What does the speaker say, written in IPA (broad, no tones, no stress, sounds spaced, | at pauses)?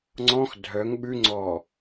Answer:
ŋ͡ǀ ɔ̃ x dʱ œ ŋ ɓ ʉ ŋ͡ǀ ɔ